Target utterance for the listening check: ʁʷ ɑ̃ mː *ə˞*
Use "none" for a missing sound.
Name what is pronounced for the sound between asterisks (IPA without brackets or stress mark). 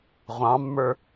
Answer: ə˞